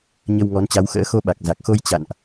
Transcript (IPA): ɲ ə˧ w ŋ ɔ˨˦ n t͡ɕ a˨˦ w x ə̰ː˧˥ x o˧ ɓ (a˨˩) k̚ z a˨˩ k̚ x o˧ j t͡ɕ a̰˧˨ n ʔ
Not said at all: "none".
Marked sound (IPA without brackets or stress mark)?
a˨˩